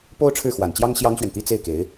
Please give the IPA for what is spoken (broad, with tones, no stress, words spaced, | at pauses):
po˥ʊ̯ʈ͡ʂʰɻ̩˥˩xwa˨˩nt͡ɕjɑ˥ŋ ɕjɑ˥ŋɕɥɛ˨nt̪i˥ t͡se˥˩ɪ̯ke˧˥ɪ̯